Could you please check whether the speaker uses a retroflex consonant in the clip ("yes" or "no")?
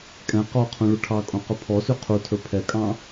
yes